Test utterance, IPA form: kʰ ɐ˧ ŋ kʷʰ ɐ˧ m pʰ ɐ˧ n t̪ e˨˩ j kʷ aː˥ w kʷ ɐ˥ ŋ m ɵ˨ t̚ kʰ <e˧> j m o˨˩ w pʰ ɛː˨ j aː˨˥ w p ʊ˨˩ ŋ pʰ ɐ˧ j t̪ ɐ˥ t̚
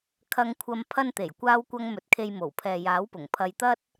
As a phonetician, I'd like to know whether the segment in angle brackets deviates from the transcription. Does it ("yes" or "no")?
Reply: no